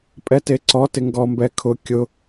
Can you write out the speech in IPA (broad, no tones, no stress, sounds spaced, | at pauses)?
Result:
pʼ ɛ t e ǀ ɔ t ɪ ŋ ɡ ɔ m b ɛ kʰ ʊ kʲ ʊ